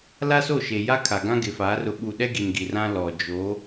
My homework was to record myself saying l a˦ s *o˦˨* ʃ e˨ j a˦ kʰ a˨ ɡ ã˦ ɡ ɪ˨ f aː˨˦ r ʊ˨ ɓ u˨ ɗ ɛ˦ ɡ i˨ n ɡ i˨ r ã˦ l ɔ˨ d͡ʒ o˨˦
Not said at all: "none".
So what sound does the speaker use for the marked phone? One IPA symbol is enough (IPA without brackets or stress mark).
o˦˨